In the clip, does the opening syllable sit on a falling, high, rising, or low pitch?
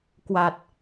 low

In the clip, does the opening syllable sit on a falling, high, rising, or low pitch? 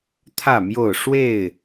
falling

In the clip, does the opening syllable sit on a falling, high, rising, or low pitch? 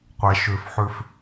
low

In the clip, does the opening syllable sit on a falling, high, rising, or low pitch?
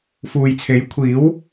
low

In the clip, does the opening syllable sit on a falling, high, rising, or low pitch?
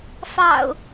low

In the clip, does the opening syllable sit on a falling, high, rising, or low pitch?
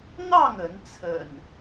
falling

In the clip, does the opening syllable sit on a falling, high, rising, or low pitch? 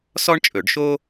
high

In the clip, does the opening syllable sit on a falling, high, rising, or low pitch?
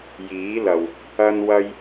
rising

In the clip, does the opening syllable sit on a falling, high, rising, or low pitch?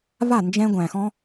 falling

